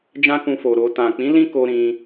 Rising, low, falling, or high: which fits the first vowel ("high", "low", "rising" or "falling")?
high